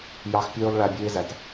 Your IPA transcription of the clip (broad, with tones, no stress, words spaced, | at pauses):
jɑ˦x pʲøː˦lˠɭæ˧ bʲeː˦zæ˨t